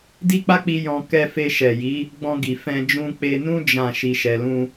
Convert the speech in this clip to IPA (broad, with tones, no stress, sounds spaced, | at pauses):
d i˦ k͡p a˦ k͡p i˧ j ɔ̃˧ k ɛ˧ f e˧ ʃ ɛ˨ j i˨˦ | ɡ͡b ɔ̃˧ ɡ i˨ f ɛ̃˧ d͡ʒ ũ˧ k͡p e˧ n ũ˦ d͡ʒ ã˦˨ ʃ i˧ ʃ ɛ˧ l ũ˦